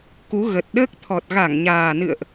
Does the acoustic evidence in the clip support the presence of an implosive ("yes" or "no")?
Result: yes